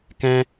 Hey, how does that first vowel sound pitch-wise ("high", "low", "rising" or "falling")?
high